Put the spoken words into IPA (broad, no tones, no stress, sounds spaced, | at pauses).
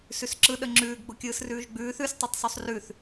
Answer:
s ʉ s ǁ ɯ ɗ ə ŋ͡ǁ ʉː ɡ ɡ͡b ʊ kʲ ɯː s r ʉː ʒ ɡ͡b ʉː θ ʉ s tˤ ɯ tˤ sˤ ʉ sˤ r ʉ θ